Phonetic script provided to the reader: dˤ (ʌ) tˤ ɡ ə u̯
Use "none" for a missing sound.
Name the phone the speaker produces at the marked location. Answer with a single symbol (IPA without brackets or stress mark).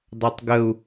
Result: a